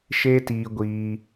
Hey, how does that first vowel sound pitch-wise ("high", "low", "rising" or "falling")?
high